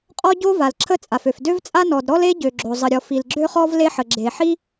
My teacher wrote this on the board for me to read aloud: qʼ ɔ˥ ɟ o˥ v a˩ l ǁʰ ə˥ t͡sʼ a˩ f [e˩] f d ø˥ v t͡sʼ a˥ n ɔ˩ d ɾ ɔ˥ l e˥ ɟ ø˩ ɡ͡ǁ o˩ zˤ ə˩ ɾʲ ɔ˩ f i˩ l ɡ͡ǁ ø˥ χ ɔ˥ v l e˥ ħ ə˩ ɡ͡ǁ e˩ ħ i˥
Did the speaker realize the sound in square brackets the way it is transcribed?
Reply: no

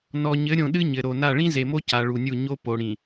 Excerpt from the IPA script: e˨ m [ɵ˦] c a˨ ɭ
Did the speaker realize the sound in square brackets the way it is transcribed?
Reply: no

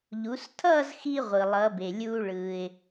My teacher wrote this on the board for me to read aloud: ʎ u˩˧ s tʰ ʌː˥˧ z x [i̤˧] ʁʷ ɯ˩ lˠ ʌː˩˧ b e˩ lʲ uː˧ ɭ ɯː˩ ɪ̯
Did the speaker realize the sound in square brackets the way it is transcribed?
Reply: no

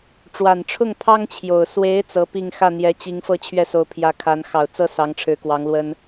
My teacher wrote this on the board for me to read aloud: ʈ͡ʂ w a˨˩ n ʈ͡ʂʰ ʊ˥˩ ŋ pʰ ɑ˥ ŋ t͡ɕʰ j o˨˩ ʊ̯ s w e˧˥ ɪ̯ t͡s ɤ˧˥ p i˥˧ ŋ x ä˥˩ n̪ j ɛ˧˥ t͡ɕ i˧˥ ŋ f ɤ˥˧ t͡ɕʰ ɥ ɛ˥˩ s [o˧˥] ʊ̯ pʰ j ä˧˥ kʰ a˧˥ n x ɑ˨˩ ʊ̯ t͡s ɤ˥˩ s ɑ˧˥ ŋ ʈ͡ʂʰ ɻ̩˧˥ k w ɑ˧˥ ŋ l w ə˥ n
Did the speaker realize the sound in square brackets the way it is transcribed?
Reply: yes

